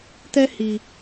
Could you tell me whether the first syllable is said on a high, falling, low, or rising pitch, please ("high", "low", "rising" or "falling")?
high